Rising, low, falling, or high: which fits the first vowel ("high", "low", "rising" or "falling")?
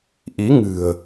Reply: rising